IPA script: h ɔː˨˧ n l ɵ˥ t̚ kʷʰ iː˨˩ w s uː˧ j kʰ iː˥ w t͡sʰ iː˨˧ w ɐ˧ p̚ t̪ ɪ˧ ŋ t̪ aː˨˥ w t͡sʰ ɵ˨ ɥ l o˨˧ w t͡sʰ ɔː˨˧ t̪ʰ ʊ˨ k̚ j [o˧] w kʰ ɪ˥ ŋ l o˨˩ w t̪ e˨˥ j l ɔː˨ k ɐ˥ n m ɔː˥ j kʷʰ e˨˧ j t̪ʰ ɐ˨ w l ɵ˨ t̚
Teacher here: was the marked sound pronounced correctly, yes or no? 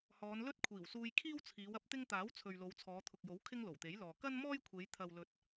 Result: no